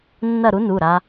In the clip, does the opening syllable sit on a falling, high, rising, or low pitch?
falling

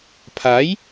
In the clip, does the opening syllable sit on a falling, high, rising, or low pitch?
rising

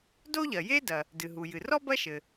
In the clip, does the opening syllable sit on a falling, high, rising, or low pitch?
high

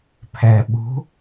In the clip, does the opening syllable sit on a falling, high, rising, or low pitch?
low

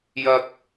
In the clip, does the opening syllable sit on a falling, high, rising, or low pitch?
low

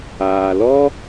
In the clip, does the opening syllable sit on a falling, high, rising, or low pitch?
low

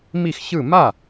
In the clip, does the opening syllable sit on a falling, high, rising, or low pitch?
falling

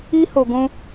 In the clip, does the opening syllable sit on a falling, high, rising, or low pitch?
high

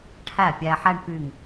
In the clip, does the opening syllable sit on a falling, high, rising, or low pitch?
falling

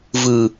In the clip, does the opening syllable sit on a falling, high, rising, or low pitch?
low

